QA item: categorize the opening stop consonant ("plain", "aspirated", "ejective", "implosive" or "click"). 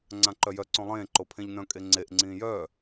click